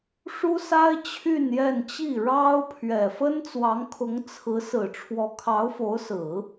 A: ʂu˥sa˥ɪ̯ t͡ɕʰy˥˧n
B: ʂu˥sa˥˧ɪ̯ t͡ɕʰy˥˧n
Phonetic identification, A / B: A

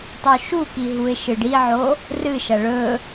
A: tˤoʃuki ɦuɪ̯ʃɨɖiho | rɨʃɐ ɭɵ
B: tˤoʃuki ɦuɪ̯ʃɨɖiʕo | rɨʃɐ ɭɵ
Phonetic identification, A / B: B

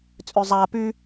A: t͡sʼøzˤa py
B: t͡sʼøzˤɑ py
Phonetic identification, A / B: A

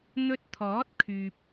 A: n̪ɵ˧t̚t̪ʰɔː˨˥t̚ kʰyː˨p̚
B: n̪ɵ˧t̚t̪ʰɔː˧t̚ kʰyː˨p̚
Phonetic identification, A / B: A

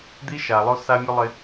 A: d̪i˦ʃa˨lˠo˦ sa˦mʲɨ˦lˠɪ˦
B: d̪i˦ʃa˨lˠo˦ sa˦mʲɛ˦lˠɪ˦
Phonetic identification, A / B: A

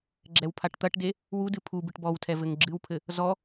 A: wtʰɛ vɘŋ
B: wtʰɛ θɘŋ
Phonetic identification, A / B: A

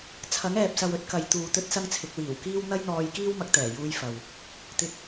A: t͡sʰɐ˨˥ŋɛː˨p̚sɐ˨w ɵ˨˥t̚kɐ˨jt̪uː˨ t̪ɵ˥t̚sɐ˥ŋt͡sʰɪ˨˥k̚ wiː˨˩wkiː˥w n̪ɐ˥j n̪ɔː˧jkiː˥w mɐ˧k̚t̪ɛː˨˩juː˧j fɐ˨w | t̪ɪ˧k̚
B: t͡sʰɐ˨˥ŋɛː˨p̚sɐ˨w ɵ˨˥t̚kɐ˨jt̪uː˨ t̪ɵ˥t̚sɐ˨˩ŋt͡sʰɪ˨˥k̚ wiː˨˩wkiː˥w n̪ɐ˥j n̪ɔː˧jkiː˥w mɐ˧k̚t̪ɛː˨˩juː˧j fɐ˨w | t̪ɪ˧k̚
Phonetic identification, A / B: A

